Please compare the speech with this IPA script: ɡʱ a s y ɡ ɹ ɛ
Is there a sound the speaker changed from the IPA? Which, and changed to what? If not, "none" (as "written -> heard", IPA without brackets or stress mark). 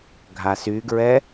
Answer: none